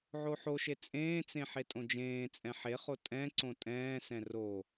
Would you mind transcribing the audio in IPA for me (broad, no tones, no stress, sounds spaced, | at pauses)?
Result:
ʕ o ħ o ʃ e t͡sʼ ẽː t͡s ẽ ħ e tʼ õ d͡ʒ ẽː t͡sʼ ɛ̃ ħ e χ o tʼ ɛ̃ ǀ õ tʼ ɛ̃ː s ɛ̃ r o